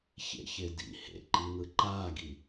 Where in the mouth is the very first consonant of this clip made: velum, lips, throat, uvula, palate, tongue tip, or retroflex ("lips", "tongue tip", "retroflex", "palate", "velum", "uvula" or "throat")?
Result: palate